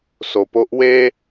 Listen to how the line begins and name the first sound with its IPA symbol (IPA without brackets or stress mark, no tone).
s